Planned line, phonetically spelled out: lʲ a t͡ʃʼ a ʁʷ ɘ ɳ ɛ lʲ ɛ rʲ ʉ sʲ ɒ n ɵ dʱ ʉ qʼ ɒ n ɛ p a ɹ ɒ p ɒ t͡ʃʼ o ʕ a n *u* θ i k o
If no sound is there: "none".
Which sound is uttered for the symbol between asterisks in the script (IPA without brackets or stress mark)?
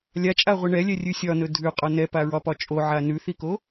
ʉ